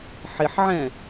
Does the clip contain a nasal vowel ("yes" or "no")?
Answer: yes